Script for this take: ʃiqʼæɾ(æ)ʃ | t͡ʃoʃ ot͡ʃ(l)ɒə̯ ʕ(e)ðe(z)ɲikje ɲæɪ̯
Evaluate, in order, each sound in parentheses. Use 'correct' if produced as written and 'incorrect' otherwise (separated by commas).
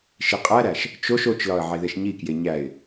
correct, correct, correct, incorrect